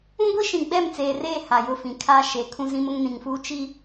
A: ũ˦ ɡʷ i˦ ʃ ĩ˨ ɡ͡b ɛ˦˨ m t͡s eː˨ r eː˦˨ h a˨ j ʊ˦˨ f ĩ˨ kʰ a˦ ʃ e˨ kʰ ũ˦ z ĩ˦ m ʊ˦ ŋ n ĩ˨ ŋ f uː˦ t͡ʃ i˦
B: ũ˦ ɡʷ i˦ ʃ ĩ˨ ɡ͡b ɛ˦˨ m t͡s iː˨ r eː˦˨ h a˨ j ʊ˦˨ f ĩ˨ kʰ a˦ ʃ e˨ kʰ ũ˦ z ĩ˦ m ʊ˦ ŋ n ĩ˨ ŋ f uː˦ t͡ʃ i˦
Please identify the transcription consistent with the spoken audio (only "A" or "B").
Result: A